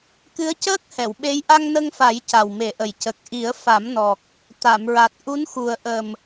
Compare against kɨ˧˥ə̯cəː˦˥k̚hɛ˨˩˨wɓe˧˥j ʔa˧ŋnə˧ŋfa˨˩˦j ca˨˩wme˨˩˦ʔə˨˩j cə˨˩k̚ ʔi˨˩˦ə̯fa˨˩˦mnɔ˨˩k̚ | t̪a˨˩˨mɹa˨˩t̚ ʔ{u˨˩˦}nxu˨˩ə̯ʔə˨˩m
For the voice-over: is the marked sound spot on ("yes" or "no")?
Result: no